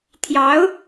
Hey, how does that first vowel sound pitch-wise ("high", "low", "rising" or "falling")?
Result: rising